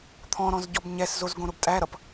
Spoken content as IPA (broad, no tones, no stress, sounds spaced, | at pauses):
t̪ʰ ɔ̃ ɾ ɔ̃ z ɟ ɔ b ɲ ɛ s z o z ɡ õ ɾ ʊ b tʼ æ ɾ ʌ p